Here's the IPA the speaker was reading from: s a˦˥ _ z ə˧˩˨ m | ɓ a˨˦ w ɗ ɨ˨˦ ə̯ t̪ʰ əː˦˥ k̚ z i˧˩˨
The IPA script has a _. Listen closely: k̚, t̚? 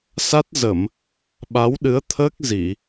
t̚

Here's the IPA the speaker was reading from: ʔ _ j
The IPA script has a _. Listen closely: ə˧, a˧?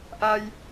a˧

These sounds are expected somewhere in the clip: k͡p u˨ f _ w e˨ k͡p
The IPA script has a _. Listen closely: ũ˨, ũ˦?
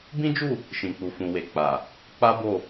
ũ˨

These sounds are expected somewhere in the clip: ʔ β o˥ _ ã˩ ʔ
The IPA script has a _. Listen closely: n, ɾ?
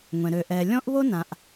n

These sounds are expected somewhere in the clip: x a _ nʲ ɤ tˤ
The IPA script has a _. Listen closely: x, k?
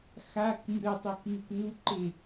k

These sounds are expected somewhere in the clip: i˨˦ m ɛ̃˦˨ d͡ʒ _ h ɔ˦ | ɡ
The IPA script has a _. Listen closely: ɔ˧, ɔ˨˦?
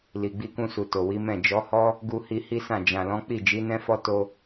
ɔ˨˦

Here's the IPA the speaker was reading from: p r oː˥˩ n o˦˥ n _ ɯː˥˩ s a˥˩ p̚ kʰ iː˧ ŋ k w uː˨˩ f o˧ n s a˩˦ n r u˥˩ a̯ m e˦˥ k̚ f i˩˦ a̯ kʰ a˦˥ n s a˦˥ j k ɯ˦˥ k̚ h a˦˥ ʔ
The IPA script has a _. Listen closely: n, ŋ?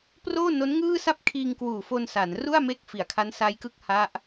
ŋ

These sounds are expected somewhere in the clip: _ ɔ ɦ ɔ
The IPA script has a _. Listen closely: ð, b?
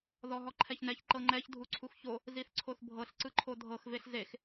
ð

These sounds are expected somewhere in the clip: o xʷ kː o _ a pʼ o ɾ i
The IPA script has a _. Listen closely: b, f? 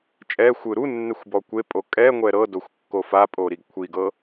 f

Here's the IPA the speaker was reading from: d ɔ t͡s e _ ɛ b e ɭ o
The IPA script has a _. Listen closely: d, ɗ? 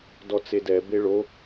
d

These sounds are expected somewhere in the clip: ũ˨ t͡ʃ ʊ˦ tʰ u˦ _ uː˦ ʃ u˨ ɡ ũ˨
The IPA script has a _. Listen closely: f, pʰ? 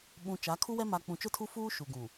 f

